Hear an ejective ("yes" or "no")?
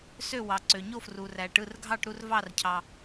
no